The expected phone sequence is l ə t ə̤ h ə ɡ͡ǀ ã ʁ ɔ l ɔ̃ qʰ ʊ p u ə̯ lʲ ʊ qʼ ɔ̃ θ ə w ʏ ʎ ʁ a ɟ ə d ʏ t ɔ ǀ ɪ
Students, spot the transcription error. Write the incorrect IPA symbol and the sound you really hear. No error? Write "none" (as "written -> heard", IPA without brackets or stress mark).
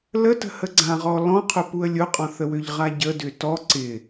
none